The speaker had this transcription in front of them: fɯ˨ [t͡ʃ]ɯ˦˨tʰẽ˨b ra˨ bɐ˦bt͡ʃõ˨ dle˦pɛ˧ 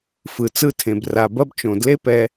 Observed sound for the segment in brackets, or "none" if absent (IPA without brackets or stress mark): t͡s